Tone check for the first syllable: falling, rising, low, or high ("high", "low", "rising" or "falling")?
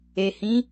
low